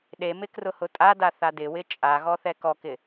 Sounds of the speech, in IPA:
ɗ e m ɪ k r ʊ h ʊ tʼ a d a θ a d ɪ w ɪ t͡ʃʼ a ɣ ɔ θ ɛ k ɔ k ɪ

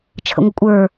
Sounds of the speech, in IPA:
t͡ʃʰ ə̰ ŋʷ ɪ kʷʼ ə˞

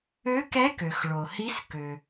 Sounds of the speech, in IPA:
ø˧˥ k ɛ˧˥ k ø˩ x ɭ o˩ h i˧˥ s k ø˩

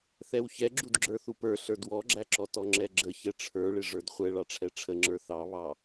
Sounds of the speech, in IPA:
θ ɛ w ç ɛ ɡ͡ǁ u d ɡ͡ǁ ə˞ θ u p ə˞ ɬ ə˞ d w ɔ ɡ͡ǁ æ ǁ ɔ t ɔ ŋ͡ǁ ɛ ɡ͡ǁ ə ç ɛ ʈ͡ʂʰ ə˞ ɭ ɪ ʐ ə˞ d χʷ ɛ ɭ ɑ ʈ͡ʂʰ ɛ ʈ͡ʂʰ ə ŋ͡ǁ ə˞ θ ɑ β ɑ

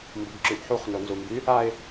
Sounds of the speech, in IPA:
m b u ɡ ǁ y ʔ ħ u χ n o n z u m b y | a ɪ̯

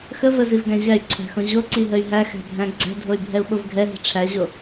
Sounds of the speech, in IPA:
x ə v ə z i v ɡ æ̃ ʑ æ y̯ ǀʰ æ̤ x õ ʑ o ǀ i ɦ ə y̯ ɦ æ x æ̤ bʱ æ̃ ɡ͡ǀ æ̤ dʱ o y̯ bʱ ɛ u̯ ɓ o v ɡʱ ɛ ɦ i̤ ʈ͡ʂʰ æ ʑ o

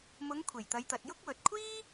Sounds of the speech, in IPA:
m ʊ˨˧ ŋ kʷʰ e˨˩ j t̪ ɐ˨˧ j t̪ ɐ˨ t̚ j ʊ˥ k̚ w ɵ˨ t̚ kʷʰ iː˥

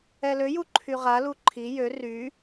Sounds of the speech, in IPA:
ɛ l ø j u ǃʰ y ʁ a l u ǃʰ i j ø r y

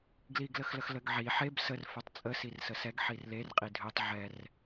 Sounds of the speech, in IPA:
ɡ l i ɡ l ə x l ə x l ə ɡ ʕ i ħ e b s ə r f ø tˤ t͡sʼ ə s i r s ə s ɛ ɡ ħ i r l e r qʼ i dʱ ø tˤ ʕ ɛ r

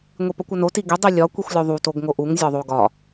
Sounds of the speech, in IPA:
ŋʷ i p ɒ kʷ ɒ n o t i ɡ e dˤ i lʲ ɒ kʷ i xʷ lʲ o ðˤ u t o ɡ ŋ o ʔ u ŋ zʲ ɒ ðˤ o ɡ ɒ

